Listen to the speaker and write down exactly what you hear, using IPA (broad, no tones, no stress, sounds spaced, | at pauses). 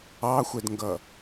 ɑ xʷ ɛ d ŋ ɡ ʌ